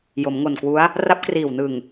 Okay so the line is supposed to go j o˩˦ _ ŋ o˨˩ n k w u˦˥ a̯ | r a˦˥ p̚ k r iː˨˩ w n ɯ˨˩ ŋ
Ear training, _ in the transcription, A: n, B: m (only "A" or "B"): B